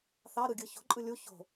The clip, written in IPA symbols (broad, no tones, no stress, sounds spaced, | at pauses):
θ ɑ ɾ ɯ ɡʲ ɯ ç o̤ ǃʼ ɯ lʲ u ç o̤